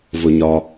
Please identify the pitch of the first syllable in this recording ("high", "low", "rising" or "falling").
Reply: low